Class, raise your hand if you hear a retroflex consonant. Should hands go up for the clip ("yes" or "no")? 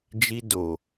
no